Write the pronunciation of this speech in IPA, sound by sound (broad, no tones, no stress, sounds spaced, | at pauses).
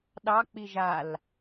ɗ ɑ k͡p i ʒ a l